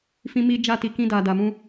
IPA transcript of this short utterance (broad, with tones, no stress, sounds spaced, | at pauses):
f ĩ˧ m i˧ d͡ʒ a˦ t i˧ k ĩ˦ d a˧ d a˧ m ũ˦